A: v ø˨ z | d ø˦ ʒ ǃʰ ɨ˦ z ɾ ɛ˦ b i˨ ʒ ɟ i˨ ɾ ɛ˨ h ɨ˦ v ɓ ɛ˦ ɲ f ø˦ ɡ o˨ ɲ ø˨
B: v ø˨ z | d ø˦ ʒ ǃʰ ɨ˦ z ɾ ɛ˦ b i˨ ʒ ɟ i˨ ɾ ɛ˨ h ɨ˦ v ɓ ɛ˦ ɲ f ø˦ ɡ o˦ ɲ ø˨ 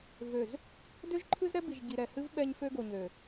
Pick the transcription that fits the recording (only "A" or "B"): A